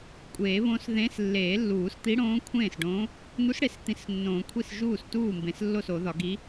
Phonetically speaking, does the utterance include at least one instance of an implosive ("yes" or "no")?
no